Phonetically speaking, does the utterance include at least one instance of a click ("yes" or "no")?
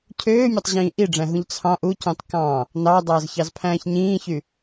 no